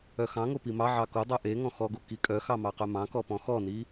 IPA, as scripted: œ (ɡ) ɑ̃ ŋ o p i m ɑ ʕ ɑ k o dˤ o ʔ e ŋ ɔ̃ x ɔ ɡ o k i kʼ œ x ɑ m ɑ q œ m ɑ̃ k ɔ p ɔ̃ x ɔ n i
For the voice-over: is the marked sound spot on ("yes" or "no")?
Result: no